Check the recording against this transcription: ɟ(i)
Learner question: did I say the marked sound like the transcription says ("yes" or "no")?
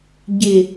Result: no